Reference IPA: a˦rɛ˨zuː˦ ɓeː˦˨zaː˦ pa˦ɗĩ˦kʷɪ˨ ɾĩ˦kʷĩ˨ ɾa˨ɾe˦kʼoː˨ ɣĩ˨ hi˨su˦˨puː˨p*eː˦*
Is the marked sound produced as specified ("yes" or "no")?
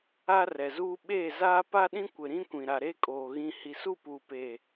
no